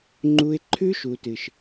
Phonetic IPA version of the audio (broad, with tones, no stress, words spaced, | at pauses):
ŋ͡ǃu˧ɪ̯ǃʰʉ˦ ʃu˨tɨ˨ʃ